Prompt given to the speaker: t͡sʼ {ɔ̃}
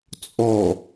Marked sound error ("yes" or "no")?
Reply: yes